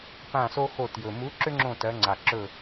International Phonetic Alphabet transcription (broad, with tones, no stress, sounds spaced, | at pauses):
p ã˧˩ s o˦ x o˧˩ t j ɵ˩ m u˨˥ ǁ ʏ˦ ŋ͡ǁ õ˧˩ t ɜ˩˧ ŋ͡ǀ a˩ ǁ ɵ˧˩